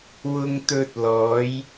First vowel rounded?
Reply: yes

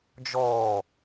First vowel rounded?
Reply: yes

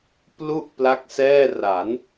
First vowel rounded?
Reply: yes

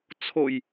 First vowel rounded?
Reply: yes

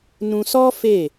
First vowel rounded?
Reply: yes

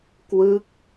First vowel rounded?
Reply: no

